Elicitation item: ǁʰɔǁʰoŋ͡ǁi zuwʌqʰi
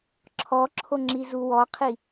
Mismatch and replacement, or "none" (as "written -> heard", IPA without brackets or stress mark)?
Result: ʌ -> ɔ